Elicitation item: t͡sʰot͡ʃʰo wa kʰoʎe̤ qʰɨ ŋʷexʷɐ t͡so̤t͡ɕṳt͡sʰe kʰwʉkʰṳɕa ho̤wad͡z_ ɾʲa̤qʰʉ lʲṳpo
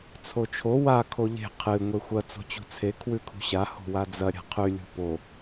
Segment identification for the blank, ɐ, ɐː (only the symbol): ɐ